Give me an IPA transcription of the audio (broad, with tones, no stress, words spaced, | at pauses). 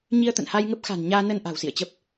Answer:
ɲi˧ə̯t̪ə̰˧˨nha˧jŋə˦˥p̚ xa̤˨˩nɲaː˧nə˧n ʔa̤˨˩wsḭ˧˨ə̯t͡ɕə˦˥p̚